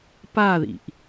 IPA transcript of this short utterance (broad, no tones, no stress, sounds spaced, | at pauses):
p a ð ḭ ʔ